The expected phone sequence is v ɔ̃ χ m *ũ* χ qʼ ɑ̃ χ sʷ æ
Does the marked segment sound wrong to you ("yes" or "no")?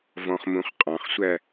no